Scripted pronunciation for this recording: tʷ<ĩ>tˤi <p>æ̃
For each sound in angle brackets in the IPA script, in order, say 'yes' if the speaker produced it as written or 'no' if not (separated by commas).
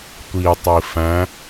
no, no